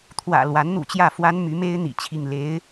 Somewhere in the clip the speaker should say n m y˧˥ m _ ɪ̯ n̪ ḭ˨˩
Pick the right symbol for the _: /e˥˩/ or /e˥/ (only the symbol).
e˥